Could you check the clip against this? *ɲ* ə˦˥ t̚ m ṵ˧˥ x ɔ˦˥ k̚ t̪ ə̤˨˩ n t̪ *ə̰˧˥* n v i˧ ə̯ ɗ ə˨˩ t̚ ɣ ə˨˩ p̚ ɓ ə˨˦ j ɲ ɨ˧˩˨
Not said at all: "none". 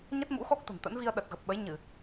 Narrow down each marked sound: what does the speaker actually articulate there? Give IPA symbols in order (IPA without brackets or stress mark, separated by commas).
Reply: ɲ, ə̰˧˥